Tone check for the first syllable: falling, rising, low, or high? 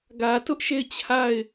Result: low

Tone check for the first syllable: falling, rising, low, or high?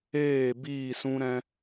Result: falling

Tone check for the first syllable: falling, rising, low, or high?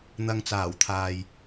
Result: low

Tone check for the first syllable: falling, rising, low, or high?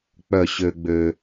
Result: falling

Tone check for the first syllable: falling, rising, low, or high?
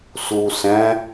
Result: low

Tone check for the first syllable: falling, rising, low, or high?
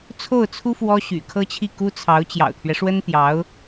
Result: falling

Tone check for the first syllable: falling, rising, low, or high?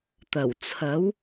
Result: low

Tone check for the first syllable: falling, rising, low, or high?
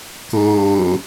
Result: low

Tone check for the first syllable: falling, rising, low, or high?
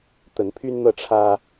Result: rising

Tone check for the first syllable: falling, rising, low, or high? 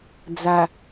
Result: low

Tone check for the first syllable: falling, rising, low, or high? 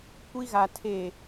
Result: high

